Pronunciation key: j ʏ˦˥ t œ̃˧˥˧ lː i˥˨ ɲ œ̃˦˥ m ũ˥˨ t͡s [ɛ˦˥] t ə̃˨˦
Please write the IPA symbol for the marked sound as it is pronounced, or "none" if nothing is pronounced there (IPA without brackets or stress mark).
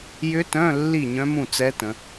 ɛ˦˥